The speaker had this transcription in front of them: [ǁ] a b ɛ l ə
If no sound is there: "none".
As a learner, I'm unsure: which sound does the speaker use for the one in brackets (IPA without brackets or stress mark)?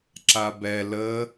ǁ